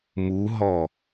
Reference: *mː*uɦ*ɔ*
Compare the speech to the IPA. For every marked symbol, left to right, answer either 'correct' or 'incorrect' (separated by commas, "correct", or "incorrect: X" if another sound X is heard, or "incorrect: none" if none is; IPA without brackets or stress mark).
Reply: incorrect: m, correct